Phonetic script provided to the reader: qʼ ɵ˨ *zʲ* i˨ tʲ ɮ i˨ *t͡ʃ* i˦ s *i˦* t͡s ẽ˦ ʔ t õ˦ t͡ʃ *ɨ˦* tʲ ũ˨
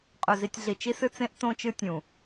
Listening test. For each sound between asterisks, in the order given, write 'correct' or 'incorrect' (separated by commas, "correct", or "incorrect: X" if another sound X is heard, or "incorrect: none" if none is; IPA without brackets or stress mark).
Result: incorrect: z, correct, incorrect: ɨ˦, correct